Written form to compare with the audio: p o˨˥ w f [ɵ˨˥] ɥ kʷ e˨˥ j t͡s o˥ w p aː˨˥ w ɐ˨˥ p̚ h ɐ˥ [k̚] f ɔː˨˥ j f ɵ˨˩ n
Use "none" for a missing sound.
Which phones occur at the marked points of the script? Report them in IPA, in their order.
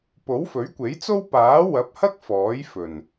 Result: ɵ˨˥, k̚

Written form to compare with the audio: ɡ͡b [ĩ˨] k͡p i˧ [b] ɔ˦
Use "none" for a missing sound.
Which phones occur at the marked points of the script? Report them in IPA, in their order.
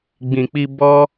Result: ĩ˨, b

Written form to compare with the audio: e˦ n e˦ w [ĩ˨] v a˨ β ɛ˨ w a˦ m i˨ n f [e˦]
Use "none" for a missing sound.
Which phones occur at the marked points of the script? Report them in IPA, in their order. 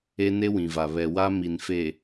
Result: ĩ˨, e˨

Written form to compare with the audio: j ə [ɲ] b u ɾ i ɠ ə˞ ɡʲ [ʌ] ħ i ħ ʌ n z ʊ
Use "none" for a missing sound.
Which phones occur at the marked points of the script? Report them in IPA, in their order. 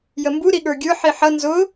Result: m, ə˞

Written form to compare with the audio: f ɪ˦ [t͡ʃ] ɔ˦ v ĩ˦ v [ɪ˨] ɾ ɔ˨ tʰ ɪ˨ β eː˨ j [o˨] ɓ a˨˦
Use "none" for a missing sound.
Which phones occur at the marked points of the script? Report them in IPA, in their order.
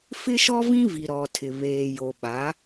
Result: ʃ, i˨, o˨

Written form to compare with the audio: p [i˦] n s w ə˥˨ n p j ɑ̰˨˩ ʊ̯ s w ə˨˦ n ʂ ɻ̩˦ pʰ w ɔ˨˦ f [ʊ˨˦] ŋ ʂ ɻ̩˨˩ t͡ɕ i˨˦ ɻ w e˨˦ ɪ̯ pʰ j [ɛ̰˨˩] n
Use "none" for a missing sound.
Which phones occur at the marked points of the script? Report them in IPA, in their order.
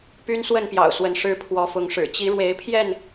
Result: y˦, ʊ˨˦, ɛ˥˨

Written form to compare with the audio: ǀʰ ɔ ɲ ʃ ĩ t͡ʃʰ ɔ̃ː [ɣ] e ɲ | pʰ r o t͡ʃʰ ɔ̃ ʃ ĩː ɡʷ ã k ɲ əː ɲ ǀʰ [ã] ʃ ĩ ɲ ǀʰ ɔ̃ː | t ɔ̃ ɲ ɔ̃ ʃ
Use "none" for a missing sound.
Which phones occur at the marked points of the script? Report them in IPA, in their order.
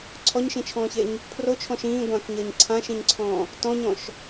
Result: ç, ã

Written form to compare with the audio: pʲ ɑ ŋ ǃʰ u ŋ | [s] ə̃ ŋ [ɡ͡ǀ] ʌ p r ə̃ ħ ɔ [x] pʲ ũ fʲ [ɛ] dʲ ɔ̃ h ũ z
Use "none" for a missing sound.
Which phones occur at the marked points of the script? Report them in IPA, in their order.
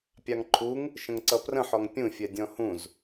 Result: ʃ, ǀ, ŋ, ɛ

